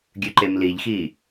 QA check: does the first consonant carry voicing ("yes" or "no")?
yes